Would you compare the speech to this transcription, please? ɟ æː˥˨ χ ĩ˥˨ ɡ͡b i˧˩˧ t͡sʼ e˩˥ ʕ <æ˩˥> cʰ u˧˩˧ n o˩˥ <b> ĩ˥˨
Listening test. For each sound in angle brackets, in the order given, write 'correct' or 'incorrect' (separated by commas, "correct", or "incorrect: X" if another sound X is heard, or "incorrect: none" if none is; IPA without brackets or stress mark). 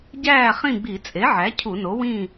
correct, incorrect: w